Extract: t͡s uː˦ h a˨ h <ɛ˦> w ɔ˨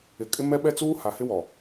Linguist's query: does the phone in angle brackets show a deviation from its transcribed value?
yes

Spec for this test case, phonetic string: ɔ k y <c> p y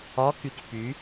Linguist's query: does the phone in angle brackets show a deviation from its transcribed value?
no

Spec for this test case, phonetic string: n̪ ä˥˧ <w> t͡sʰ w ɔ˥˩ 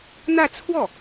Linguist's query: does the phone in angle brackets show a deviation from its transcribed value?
yes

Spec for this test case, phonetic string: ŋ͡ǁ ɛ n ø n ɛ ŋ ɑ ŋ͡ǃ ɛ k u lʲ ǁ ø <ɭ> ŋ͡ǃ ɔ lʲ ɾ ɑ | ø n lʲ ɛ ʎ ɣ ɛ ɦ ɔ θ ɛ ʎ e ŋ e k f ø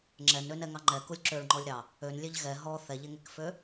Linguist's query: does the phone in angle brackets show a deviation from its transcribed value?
no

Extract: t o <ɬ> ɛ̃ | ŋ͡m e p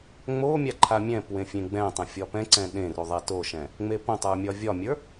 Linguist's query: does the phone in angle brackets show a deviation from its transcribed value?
yes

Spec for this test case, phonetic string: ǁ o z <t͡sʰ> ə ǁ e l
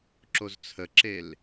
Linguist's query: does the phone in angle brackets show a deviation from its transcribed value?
no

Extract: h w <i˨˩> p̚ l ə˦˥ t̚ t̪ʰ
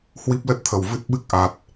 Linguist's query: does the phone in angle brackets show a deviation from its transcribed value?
yes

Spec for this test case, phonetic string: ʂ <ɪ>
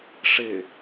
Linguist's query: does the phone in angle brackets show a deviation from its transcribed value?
no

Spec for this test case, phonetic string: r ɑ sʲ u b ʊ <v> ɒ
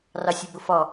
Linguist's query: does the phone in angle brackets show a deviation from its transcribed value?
yes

